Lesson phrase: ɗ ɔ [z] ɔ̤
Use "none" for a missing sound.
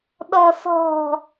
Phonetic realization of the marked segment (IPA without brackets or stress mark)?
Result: s